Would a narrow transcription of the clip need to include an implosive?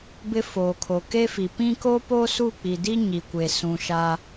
no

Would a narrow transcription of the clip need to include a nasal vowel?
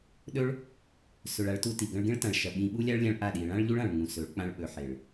yes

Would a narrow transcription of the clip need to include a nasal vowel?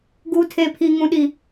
yes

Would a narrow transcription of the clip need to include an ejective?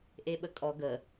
yes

